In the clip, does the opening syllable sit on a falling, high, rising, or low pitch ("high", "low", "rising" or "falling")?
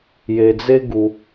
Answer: low